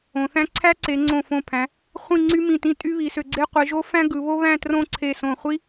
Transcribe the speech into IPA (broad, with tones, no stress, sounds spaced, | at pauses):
õ˩˧ θ æ̃˥ ǀʰ æ˥ ǀ e˩˧ ŋ͡ǀ õ˧˩ f õ˧˩ pʰ æ̃˩˧ | χʷ ĩ˥˧ ŋ͡ǀ y˥ m ĩ˧˩ t ĩ˥˧ tʼ y˥ β i˩˧ s ø˧ ɡ͡ǀ e˥ qʷ i˩˧ ʒ o˥ f æ̃˥ ɡ ɯ˩˧ β o˥ β æ̃˥˧ t r õ˥˧ ǀʰ e˧˩ s õ˧˩ χʷ i˥